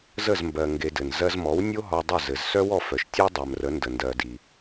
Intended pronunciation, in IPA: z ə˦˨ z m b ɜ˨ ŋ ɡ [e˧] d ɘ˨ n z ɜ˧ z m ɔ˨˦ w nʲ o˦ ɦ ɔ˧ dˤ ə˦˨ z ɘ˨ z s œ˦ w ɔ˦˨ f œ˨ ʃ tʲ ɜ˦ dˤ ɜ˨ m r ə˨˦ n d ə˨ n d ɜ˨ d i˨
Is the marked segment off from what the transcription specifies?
no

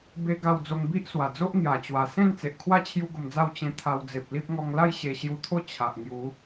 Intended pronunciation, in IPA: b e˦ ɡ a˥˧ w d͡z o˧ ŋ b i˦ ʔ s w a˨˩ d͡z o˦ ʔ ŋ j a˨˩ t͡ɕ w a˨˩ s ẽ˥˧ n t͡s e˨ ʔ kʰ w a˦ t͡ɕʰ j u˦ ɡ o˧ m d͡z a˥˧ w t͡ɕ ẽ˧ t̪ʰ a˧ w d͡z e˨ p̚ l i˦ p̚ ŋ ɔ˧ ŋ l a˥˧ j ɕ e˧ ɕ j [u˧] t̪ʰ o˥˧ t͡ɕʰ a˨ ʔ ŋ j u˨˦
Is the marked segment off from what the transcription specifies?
no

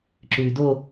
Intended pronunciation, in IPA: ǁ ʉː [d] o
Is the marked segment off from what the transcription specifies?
no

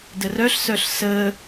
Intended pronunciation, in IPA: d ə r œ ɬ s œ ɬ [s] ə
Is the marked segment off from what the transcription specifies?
no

